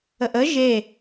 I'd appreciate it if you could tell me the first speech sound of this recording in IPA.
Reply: ə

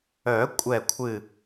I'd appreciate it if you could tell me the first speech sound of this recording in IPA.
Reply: œ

